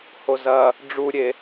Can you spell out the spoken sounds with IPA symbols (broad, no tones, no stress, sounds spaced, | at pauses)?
h o z ɐ | ɖ͡ʐ u ɾʲ e